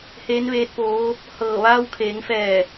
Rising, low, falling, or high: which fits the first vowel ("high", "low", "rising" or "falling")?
rising